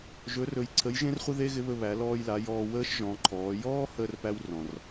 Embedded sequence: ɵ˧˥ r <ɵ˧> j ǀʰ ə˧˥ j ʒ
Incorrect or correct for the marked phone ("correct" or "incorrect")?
correct